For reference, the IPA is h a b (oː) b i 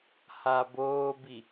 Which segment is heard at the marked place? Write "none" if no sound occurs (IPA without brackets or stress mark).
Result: oː